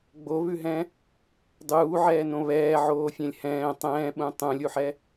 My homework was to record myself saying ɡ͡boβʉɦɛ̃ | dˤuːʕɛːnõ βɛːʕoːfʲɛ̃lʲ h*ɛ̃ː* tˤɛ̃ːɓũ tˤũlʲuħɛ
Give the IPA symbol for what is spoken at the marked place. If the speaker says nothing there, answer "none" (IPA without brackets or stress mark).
ɛ̃ː